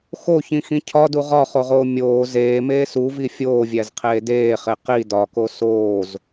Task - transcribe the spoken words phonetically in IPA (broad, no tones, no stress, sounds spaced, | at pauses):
x o ç ĩ x ĩ cʰ ɒ d u ʁ ɒ χ o ʁ oː mʲ oː z eː m eː s u v i fʲ oː vʲ æ z qʰ eː d eː χ e q i d ɒ k o s oː z